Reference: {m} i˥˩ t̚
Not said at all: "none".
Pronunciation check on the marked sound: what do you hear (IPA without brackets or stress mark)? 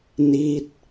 n